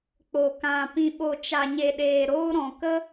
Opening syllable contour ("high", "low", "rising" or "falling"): low